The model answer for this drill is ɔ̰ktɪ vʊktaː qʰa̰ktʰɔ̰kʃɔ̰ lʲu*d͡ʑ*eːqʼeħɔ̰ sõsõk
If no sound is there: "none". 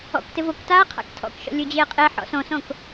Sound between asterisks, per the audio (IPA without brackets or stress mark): d͡ʑ